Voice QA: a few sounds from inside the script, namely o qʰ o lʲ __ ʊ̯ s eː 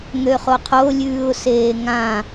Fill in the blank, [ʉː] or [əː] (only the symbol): ʉː